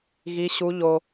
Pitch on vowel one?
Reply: high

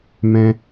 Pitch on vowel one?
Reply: high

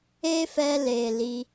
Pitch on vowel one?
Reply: high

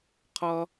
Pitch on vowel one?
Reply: high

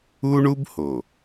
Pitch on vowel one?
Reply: high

